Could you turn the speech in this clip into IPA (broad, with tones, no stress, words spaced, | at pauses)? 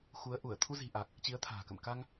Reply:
xu˨˦ə̯ʔu˧˩ə̯ t̪ʰu˧zi̤˨˩ʔa˨˩k̚ | t͡ɕi˨˦ə̯t̪ʰa̤ː˨˩kə̰˧˨m ka˧ŋ